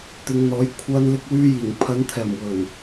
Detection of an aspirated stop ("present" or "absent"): present